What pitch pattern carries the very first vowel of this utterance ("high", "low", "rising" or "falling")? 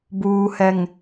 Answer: low